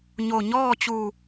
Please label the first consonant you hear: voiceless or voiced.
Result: voiced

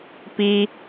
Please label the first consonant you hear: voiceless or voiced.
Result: voiceless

